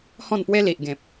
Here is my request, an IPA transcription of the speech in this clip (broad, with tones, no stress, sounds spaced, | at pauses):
h ɔ̃˥˧ n p w e˦ l i˨ ʔ ɡ ẽ˨ p̚